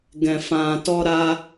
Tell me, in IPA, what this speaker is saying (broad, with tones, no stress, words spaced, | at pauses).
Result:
ɡɛ̃˨fã˨tɔ˧ ɾa˧